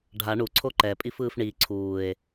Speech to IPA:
ɖʱ a ɳ u ǀʰ o ǃ ɛ pʼ i f ɯː f ɳ i ǀʰ uː e̯

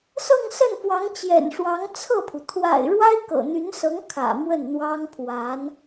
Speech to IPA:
s ɤ˥˧ ŋ s ə˥˩ n f w ɑ˧˥ ŋ t͡ɕ j ɛ̰˨˩ n ʂ w ɑ˧˥ ŋ t͡sʰ ɤ˥˩ pʰ u˩ t̪ʰ w a̰˨˩ ɪ̯ ɻ w a˥ ɪ̯ k ɤ̰˨˩ n̪ y˧˥ n s ɤ˧˥ ŋ kʰ ä̰˨˩ m w ə˥˩ n n̪ w ɑ˥ ŋ pʰ w a˧˥ n

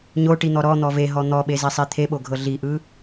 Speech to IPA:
ɲ o ʈ i n̪ ɔ ɾ ɔ n̪ ɔ v e ɦ ɔ n̪ ɔ ɓ e z i sˤ i t̪ʰ e ɓ o ɡʱ ɤ ɮ i ʔ ɯ

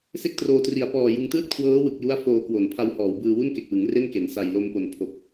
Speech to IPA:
s e˥˩ k̚ t r oː˧ t r i˨˩ a̯ p ɔː˨˩ j ɯ˧ ŋ t ɯː˥˩ t̚ kʰ w ɤː˦˥ w ɯ˨˩ k̚ j u˦˥ a̯ f oː˧ k w o˨˩ n pʰ a˧ w h ɔː˩˦ w b ɯː˧ w u˥˩ n k e˨˩ k̚ w ɯ˩˦ ŋ r e˥˩ n k e˨˩ n s a˨˩ j l o˧ m p o˨˩ n pʰ o˨˩ k̚

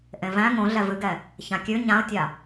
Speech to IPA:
ʔ ẽ v æ̃ ŋ õ ɮ ɛ v ɨ ɡ ɛ | ç ã kʲ ʉ ɲ ã ʊ̯ tʲ a

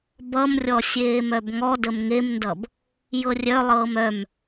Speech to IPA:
b ʌ m rʲ ɔ sʲ eː m œ b ŋ ɔ d ə m ŋ e m n d ʌ b | j ɤ rʲ œ lˠ ɤː m œ m

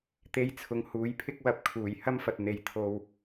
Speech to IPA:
t̪ e˧ j t͡sʰ ʊ˨˧ ŋ h uː˨˥ j pʰ ɪ˥ k̚ w ɐ˨ p̚ kʰ uː˨˩ j h ɐ˥ m f ɐ˨ t̚ n̪ e˨ j t̪ʰ o˨ w

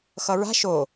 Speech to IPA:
x ʌ ɹ a̤ ʃ o

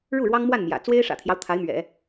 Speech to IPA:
ɻ u˥˩ ɻ w ɑ˥ ŋ m w a˥˩ n m j ä̰˨˩ t͡s w e˥ ɪ̯ ʂ ä̰˨˩ t̪ʰ j ɑ˦ ʊ̯ t̪ʰ a˧˥ ɪ̯ m ɥ ɛ̰˨˩˦

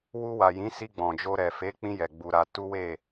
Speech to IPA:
w u˧ w a˨ j ĩ˨˦ s i˧ ɡ͡b ɔ̃˨ d͡ʒ o˧ ɾ ɛ˨ f e˨˦ k͡p ĩ˧ j ɛ˨ ɡ͡b u˧ ɾ a˧ t u˦ w e˦˨

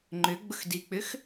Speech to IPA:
ŋ͡ǃ ʏ ɡ͡b ʊ x d i k͡p ʏ x

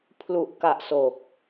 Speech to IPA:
pʰ l u˨˩ ʔ k a˨˩ ʔ s o˨˩ k̚

